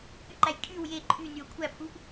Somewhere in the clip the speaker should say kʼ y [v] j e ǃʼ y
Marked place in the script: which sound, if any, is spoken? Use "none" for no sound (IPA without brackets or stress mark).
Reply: w